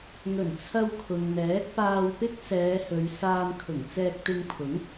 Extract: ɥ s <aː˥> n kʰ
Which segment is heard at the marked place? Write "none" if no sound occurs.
aː˧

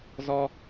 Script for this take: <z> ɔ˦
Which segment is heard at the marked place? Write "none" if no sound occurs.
z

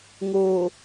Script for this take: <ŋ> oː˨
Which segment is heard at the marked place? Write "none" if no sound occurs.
ŋ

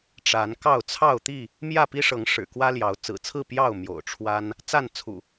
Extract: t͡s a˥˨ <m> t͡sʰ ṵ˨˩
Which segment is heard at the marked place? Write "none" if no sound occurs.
n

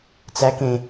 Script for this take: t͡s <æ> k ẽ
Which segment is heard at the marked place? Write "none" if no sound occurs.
æ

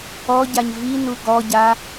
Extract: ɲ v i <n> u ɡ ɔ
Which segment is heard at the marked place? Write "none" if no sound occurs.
n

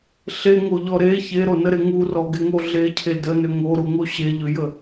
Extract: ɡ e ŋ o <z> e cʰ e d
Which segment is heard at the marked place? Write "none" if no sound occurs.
ɮ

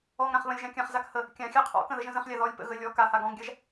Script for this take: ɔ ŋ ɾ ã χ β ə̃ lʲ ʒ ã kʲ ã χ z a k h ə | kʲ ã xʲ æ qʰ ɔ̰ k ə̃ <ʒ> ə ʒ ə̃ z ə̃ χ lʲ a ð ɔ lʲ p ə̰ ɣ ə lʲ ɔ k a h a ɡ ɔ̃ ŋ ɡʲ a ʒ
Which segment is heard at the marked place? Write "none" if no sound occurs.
ð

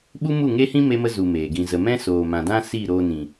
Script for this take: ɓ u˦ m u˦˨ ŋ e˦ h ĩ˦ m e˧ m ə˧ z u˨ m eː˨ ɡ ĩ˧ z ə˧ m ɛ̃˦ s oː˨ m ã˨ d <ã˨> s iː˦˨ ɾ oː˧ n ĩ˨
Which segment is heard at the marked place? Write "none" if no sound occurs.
ã˦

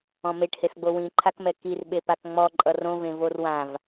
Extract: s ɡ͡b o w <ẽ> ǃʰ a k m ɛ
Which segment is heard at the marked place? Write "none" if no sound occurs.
ĩ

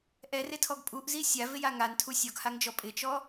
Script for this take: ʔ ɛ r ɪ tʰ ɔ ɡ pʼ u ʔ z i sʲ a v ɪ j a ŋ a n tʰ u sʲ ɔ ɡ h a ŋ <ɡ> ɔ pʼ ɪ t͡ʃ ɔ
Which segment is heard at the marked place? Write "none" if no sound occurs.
d͡ʒ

